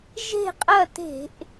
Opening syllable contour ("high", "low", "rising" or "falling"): falling